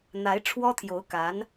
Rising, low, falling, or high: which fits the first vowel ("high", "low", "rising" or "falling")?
rising